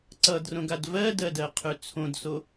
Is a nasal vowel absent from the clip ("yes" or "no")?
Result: no